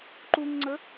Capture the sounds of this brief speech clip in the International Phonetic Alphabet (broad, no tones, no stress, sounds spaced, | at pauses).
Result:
ǃ u ŋ ŋ͡ǀ ə